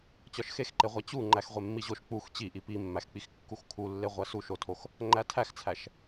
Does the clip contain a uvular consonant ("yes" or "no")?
yes